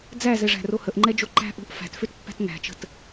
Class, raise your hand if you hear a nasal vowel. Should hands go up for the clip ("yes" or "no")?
no